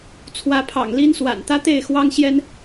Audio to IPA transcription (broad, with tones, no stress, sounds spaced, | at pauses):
t͡sʰ w ä˨˦ pʰ ɑ̰˨˩ ŋ l i˦ n s w a̰˨˩ n t̪ ä˦ t̪ e˥˨ ɪ̯ x w ɑ˦ ŋ ɕ j ɛ˦ n